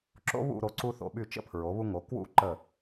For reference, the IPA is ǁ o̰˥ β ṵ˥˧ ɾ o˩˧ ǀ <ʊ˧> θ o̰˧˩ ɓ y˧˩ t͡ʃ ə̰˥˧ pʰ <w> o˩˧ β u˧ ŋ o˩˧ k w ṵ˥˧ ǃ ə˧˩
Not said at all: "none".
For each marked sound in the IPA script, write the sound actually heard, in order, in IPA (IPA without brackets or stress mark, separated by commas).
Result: u˧, ɹ